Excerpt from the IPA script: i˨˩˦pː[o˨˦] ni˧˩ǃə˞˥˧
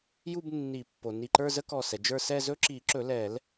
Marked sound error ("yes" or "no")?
yes